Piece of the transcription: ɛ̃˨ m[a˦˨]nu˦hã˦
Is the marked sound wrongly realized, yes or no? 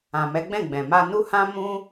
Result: yes